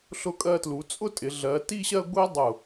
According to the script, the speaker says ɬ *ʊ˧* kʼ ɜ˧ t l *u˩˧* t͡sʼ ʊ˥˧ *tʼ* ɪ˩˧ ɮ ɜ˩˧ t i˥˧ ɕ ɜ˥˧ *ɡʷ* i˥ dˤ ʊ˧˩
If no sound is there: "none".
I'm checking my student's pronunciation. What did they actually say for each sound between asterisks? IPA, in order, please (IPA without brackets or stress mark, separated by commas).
ʊ˧, u˩˧, tʼ, ɡʷ